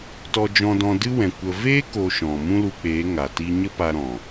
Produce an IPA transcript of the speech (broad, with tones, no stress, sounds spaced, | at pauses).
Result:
t ɔ˧ d͡ʒ ɔ̃˧ d ɔ̃˧ d ɨ˦ w ɛ̃˨ kʷ ə˧ v eː˦ k o˧ ʃ ɔ̃˨ m ũ˦ l u˧ k͡p eː˨˦ ŋ a˨ t i˦ ɲ ə˦ p a˧ ɾ ɔ̃˨